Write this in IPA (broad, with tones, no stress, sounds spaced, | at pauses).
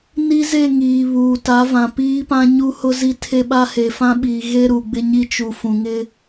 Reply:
n i˦ z e˦˨ ŋ iː˨ β uː˨ t a˨˦ v ã˨ p iː˦ p ã˦ ɲ u˦ h ʊ˦ z i˦ tʰ e˦ ɓ a˦ h e˨ f ã˦ ɓ iː˨ ɣ e˦ ɾ u˨ ɡ͡b ɪ˦ ɲ i˦ t͡ʃ u˨ f ũ˨ ŋ ɪ˦